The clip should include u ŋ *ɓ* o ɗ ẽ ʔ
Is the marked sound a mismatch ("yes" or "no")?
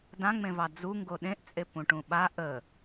yes